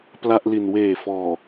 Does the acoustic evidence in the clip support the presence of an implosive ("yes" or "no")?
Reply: no